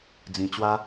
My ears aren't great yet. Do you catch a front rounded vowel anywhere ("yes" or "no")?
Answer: no